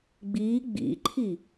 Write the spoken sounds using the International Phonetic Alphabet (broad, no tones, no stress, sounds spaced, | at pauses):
ɡ͡b i ɡ͡b ḭ ǃʰ i